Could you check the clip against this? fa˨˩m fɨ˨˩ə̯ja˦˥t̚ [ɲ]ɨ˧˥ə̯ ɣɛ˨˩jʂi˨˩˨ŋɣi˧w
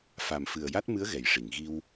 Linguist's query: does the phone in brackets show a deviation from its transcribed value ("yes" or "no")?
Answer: yes